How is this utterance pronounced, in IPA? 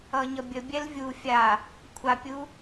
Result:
ʌɲʌbʲə bʲɛlvʲu fʲa | kʷʰapʲu

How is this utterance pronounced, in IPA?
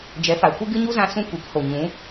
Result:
d͡ʒɛ˨˦fa˨kʷɨ˦ ɡɨ˦ɲu˦zã˧ sũ˦kʷi˨˦kho˨ ɲũ˨˦

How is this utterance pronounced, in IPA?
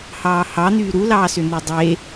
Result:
hɑːhɑ n̪yːɾulɑːsʏ n̪ydˤe

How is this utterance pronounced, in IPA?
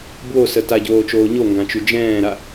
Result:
bwosə taɟoːt͡ʃoː ɲoŋɡãt͡ʃy d͡ʒɛ̃ːɾa

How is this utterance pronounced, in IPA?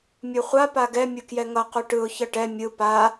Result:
mʲuχʷa paɡɛ mʲɯkjɛŋʌ quʈɯʊ̯ çʌʈɛ mʲɯ pa

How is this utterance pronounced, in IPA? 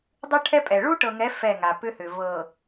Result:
dˤʏ˦ ʈʰɛ˦pʼɛ˨ ɭu˦ʈɤ˨ŋɛ˨˦ fɛ˦˨ŋa˨ pʏ˦hʏ˨ vɤ˨

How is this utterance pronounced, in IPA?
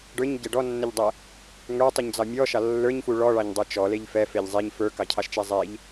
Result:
ɖə˞ɲɟɛ ɖɔnːəʎdˤɛ | ŋə˞tˤuɲd͡zɑ mʲɔʃɑ lːə˞ɲfu ɭɔɭɑɲdˤə˞ t͡ʃɔleʎ fɛfeʎ zˤeɲ fə˞kɑcʰɑʃt͡ʃɛ zˤeʎ

